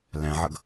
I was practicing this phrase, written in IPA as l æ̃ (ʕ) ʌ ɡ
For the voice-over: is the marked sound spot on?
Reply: yes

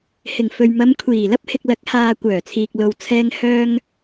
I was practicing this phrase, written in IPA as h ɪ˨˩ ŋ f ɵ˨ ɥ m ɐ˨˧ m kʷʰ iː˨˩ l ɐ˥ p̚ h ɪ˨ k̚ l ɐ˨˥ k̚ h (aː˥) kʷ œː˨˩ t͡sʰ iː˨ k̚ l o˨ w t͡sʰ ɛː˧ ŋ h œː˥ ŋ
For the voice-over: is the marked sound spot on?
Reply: no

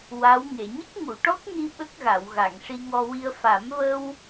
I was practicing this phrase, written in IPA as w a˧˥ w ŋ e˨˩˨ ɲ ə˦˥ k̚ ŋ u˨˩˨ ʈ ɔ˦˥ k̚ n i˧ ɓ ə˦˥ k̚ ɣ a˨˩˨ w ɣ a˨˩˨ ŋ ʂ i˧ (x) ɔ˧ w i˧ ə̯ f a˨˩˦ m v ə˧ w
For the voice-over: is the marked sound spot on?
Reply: no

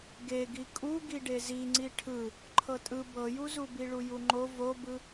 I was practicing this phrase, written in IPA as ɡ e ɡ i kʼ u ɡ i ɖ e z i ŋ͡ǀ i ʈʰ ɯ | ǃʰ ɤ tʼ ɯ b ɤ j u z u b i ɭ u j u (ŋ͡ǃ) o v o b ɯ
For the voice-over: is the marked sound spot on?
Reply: yes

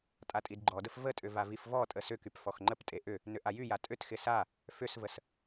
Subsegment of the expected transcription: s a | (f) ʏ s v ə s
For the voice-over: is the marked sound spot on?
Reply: yes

